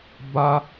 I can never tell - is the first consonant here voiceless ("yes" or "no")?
no